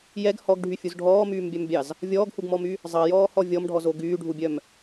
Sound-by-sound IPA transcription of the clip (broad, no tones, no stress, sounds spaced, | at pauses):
j ɛ ɡ h ɔ ɡ ɖʱ y fʲ u z ɖʱ ɔː m yː m bʲ œ m bʲ ɑ z | vʲ ɔː ɡ h u ɡ m ɔ m y | zˤ ɑ j ɔː h ɔ vʲ ɔ m ɖʱ ɔ z o ɡ yː ɖʱ u bʲ œ m